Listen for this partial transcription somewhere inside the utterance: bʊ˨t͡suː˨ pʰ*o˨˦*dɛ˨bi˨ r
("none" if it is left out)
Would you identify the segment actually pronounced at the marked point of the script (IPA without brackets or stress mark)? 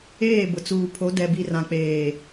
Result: o˨˦